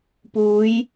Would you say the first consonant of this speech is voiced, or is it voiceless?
voiceless